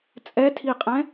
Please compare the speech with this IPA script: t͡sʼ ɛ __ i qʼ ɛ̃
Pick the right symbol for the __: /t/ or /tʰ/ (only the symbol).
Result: tʰ